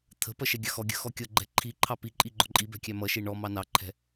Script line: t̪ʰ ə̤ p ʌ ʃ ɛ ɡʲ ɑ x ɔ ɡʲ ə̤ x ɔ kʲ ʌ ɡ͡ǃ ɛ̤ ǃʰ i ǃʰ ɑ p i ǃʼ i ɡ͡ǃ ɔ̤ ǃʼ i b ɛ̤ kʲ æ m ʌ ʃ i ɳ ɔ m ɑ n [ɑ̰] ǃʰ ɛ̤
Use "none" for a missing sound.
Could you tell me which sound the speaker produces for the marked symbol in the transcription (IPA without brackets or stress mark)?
ɑ